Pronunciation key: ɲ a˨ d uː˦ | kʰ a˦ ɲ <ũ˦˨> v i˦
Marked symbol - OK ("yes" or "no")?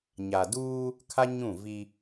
yes